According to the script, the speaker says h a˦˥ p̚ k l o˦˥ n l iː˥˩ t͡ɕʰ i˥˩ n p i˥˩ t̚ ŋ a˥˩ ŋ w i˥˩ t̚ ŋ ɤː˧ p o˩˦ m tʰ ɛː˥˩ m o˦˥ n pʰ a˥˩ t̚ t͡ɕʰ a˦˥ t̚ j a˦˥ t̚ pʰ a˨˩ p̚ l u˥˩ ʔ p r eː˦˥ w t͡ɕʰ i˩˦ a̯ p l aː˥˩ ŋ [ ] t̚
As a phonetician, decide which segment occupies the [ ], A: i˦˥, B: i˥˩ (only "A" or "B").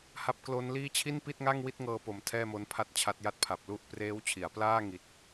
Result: A